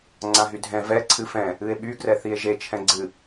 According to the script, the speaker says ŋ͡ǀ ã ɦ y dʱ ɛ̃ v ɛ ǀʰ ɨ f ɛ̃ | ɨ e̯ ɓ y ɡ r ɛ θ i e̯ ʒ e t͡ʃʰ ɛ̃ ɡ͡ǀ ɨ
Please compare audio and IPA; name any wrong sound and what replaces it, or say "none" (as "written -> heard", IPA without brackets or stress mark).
none